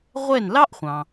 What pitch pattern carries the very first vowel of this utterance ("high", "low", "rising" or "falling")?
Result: falling